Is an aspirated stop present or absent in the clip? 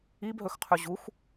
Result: present